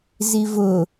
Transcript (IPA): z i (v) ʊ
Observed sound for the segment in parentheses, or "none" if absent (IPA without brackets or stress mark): v